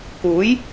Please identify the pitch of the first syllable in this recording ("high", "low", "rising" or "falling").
rising